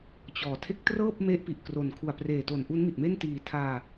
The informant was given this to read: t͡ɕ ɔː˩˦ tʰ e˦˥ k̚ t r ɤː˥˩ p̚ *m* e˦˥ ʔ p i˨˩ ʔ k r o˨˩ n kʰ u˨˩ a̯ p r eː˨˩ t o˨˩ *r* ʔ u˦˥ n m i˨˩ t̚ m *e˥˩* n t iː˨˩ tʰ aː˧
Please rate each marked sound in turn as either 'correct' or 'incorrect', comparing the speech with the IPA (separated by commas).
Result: correct, incorrect, correct